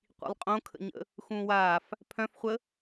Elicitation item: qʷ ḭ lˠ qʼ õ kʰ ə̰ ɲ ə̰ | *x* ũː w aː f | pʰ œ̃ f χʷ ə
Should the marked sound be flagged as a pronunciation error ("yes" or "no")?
no